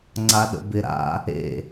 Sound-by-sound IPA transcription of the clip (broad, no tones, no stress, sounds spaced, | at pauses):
ŋ͡ǀ a ɗ ə̰ b ɪ ɾ a̰ | ḛ